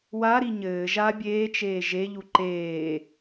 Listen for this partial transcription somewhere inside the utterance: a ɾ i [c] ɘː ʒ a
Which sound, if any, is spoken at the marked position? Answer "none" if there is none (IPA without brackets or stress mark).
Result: ɲ